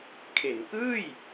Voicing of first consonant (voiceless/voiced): voiceless